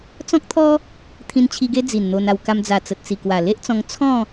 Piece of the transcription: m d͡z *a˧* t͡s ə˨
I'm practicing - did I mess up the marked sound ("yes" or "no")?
yes